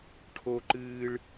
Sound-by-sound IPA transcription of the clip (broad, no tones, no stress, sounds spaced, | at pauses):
ʈʰ o ǃ ɨː ɭ